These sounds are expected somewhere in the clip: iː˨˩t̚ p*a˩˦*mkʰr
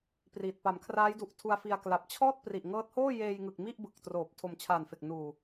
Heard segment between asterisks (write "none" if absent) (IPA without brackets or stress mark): a˩˦